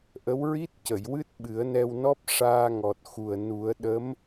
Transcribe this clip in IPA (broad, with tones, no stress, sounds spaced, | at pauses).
ʔ ə˧˥ w ɹ i˦˥ t̚ c ə˨˩˨ j w ɨ˦˥ t̚ ɓ ɨ˨˩˦ ə̯ n ɛ˧ w n ɔ˦˥ p̚ ʂ aː˧ ŋ ɔ˨˩ t̚ x u˨˩ ə̯ n u˨˩˦ ə̯ ɗ ə˧˥ m